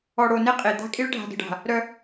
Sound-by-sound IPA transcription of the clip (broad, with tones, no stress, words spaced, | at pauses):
ɔ˨ɽo˨ne˦ qʼe˨ d̪a̤˦ kʼi˦ɭɖʱa̤˨də̤˨ɖa̤˨ | ɾœ˦